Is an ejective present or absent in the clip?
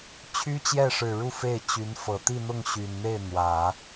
absent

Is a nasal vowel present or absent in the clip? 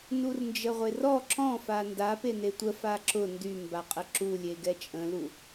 present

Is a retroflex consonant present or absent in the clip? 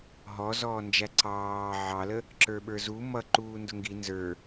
absent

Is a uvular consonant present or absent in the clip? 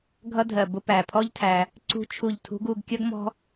absent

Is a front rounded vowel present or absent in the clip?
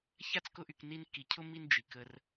present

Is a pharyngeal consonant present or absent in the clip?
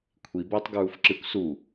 absent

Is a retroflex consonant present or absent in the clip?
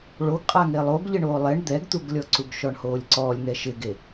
present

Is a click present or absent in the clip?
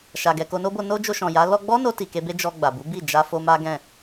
absent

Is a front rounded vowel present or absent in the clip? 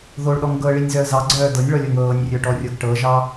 present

